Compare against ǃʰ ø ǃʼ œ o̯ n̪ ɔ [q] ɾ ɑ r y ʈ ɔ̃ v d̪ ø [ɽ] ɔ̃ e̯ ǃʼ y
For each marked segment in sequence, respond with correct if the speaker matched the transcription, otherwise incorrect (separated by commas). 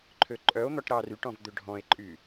incorrect, incorrect